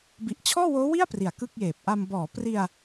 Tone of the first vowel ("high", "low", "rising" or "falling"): low